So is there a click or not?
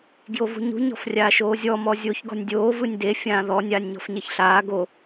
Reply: no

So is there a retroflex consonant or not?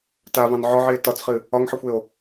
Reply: no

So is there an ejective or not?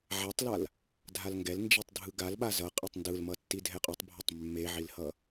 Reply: yes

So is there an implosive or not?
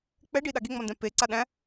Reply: yes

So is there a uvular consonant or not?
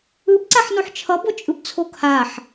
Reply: no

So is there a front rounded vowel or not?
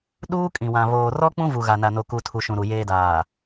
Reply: no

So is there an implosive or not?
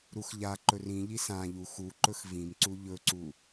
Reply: no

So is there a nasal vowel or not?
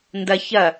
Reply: no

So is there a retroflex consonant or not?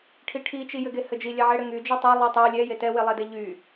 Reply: yes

